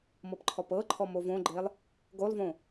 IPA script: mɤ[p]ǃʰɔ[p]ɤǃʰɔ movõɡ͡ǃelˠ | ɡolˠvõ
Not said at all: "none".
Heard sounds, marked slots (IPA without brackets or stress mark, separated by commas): p, p